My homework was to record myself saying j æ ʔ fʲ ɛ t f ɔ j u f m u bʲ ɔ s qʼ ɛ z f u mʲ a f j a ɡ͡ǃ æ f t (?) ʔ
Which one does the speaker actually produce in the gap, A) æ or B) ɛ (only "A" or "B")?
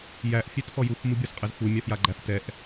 B